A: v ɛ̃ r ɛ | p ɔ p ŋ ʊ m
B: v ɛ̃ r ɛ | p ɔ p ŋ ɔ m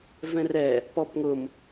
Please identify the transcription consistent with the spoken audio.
A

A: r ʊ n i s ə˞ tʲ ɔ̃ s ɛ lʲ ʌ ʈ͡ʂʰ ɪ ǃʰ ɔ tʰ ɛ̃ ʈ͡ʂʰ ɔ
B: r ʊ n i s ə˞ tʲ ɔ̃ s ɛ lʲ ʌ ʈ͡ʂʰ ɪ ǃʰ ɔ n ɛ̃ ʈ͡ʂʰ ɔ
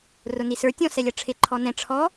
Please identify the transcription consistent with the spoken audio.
B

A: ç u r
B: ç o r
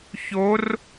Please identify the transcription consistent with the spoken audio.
B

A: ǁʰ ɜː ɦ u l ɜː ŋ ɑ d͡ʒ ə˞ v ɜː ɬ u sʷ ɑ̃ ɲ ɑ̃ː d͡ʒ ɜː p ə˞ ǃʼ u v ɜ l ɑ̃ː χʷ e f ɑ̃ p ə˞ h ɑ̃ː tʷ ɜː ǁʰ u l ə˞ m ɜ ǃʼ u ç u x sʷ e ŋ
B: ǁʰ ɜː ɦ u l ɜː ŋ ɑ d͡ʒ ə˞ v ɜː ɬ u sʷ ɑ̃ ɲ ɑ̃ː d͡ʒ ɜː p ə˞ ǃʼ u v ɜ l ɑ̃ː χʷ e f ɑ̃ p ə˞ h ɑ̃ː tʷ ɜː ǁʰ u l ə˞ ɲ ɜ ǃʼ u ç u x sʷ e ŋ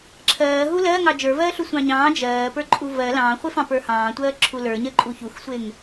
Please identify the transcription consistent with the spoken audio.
B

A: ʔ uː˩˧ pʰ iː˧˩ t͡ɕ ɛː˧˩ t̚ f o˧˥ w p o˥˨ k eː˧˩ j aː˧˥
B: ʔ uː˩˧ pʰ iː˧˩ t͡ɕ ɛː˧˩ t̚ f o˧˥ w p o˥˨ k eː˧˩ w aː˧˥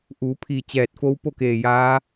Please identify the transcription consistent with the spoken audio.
A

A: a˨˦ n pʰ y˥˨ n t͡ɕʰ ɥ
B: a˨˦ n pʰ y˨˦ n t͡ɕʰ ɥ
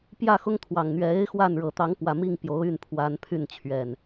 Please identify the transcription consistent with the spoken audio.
A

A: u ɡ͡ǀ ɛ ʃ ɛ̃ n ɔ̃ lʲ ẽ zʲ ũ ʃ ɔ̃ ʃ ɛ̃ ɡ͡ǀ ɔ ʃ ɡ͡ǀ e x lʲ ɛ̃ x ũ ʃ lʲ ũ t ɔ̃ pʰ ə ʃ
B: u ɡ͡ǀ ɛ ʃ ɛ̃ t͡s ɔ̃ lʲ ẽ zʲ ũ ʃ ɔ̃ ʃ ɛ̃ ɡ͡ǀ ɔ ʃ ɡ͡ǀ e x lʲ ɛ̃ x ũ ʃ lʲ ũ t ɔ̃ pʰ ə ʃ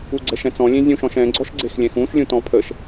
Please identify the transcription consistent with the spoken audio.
B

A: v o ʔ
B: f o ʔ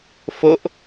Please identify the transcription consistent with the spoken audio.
B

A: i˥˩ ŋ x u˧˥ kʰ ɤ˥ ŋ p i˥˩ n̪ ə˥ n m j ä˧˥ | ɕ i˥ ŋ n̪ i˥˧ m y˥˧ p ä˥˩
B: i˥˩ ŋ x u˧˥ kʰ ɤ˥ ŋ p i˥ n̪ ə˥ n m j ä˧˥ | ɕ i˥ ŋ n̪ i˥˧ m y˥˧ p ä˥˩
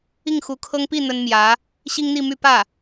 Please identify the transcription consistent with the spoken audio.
A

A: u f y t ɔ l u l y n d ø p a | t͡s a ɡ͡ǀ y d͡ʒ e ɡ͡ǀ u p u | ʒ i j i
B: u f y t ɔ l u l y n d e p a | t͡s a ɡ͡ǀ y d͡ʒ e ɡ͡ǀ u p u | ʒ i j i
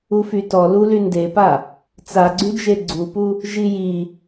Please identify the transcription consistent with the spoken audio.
B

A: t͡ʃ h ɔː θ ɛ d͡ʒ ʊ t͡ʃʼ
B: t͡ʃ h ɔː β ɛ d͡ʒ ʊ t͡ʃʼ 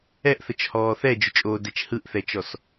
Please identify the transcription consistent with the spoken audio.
A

